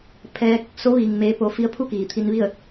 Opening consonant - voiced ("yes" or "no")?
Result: no